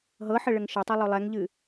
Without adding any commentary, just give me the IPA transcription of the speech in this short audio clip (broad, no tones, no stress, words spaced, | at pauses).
ɦɤħəɭəŋ ʃɤtˤɤlˠo lˠɛŋʎɨ